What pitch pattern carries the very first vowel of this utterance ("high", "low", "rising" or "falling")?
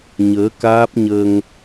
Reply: rising